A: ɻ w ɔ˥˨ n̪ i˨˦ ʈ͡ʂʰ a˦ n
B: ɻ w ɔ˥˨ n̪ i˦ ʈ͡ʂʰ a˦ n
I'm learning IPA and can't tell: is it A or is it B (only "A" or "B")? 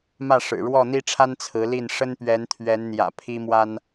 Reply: B